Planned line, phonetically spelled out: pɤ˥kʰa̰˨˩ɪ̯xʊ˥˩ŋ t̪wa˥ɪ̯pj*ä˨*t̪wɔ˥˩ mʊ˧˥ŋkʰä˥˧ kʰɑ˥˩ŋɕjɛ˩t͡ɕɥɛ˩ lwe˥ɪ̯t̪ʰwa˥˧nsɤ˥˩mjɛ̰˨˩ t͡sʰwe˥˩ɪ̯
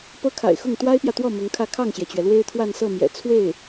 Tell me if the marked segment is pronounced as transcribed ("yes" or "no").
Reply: yes